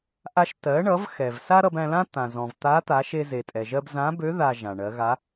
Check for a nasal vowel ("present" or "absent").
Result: present